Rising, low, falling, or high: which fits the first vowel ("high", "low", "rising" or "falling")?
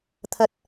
low